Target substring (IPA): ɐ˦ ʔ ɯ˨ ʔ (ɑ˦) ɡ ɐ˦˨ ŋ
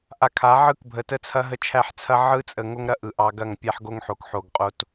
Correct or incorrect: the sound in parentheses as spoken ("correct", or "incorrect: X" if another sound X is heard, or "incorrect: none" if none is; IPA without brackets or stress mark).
correct